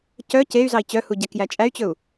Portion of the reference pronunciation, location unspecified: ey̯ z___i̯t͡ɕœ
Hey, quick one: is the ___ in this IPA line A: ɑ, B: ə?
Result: A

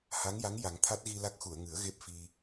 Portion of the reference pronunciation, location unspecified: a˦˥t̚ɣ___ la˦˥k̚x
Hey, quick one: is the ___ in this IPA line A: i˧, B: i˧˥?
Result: A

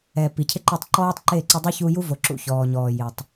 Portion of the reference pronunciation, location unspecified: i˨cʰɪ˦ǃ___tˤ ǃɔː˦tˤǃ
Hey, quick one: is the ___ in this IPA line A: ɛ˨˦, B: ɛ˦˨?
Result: B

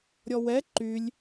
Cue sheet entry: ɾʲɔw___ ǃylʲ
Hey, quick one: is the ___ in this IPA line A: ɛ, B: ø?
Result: A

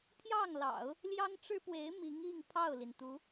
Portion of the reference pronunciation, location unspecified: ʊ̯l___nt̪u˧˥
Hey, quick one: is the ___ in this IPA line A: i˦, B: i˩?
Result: B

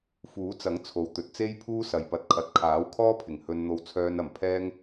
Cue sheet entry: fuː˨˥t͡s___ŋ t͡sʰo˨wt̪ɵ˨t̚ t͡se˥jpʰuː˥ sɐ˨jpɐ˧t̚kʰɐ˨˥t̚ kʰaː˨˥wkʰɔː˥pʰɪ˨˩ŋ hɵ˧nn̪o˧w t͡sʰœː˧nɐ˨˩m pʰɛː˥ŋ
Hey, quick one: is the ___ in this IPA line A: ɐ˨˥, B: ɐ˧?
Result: A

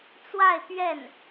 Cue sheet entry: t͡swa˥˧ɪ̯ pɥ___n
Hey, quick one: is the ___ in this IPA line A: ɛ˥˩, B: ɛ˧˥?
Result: A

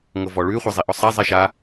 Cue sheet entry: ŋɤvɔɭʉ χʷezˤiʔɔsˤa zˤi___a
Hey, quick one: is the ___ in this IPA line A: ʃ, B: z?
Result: A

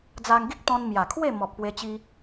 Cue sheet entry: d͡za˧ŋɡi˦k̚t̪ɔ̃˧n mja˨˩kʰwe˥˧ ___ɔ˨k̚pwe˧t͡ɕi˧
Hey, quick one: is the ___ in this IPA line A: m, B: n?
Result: A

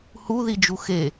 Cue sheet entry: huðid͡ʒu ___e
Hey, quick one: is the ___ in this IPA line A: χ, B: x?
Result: B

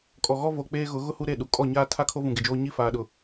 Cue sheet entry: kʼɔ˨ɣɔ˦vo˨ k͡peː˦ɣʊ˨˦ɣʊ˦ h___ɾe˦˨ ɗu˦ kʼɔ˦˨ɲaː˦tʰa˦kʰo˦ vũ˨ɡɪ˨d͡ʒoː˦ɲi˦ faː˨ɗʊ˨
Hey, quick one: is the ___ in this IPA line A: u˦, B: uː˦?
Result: A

